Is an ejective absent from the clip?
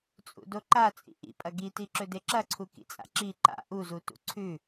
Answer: no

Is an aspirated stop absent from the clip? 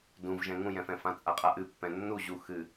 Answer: yes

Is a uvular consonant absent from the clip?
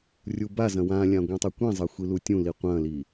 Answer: no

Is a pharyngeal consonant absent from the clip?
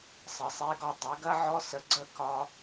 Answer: no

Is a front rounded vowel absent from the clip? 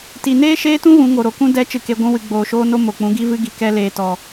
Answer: yes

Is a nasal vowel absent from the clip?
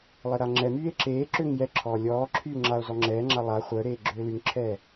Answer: yes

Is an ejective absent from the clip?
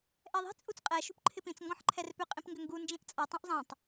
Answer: no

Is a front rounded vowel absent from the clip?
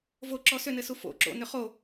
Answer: no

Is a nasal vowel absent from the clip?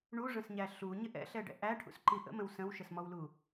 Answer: no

